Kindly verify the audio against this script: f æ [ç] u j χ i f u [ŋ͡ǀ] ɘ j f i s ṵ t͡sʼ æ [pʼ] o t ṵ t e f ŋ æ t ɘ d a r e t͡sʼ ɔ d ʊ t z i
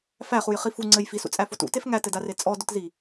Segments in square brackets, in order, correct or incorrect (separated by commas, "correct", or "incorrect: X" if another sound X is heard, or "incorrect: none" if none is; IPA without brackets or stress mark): incorrect: χ, correct, incorrect: f